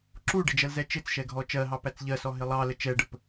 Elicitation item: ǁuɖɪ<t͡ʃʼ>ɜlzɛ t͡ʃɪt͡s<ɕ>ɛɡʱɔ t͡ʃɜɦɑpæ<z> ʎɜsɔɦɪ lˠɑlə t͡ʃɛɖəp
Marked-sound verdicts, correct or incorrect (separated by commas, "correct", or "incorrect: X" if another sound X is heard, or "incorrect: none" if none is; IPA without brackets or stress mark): incorrect: d͡ʒ, incorrect: ʃ, incorrect: t͡s